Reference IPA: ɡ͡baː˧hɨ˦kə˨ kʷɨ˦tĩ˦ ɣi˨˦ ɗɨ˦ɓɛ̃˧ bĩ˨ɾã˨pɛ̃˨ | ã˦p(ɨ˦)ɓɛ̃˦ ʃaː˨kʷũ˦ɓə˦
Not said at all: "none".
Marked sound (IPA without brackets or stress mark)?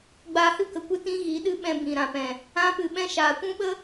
ɨ˧